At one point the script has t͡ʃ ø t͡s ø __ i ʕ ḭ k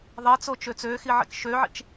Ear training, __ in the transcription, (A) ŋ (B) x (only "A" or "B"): B